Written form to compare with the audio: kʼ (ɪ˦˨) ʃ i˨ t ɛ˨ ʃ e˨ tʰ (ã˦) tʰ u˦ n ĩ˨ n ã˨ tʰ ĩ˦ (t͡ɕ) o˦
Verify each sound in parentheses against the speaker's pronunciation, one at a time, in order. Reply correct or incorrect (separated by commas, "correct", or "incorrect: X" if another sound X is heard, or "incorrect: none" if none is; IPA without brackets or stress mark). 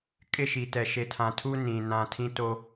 correct, incorrect: ã˨, incorrect: t